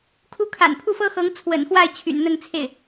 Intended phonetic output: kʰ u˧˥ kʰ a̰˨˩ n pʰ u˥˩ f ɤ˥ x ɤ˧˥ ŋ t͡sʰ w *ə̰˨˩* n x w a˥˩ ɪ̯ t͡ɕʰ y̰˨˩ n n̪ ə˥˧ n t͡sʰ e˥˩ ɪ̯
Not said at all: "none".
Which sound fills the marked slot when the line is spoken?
ə̰˨˩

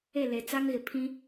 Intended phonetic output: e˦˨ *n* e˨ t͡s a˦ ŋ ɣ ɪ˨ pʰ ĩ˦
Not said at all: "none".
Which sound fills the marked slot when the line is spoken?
l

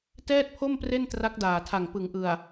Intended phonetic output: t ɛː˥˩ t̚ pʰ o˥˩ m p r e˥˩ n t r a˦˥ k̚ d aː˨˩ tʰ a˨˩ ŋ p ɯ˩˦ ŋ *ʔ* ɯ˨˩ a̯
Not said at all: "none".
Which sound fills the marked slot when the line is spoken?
ʔ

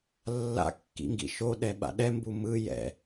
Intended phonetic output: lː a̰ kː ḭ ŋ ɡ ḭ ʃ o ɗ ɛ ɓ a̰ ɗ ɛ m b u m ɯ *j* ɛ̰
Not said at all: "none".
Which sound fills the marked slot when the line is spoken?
j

